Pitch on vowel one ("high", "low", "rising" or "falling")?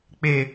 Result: low